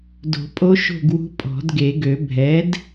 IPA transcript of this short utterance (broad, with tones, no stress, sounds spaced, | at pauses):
d o̤˨˩˦ pʼ o˧˥ ʃ o̤˥˨ ɡ w ṳ˧˥ pʼ ɔ̤˨˩˦ d ɡ e˨˩˦ ɡ ø˨˩˦ bʱ ɛ˩˥ d